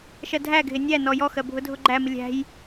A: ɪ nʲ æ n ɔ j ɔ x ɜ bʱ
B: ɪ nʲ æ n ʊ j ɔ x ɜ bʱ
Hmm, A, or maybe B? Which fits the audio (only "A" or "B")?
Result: A